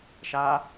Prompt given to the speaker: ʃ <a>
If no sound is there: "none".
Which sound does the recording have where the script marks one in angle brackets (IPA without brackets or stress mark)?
a